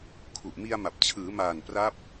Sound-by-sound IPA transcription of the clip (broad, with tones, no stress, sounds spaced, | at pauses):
kʰ u˨˩ ʔ m i˧ a̯ m a˨˩ p̚ t͡ɕʰ ɯː˩˦ m aː˨˩ n p r a˦˥ p̚